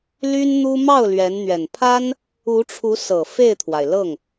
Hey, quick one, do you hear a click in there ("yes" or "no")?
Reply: no